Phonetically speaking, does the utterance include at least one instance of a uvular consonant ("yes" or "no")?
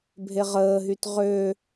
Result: yes